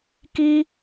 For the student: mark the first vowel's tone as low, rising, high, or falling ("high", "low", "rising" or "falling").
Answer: high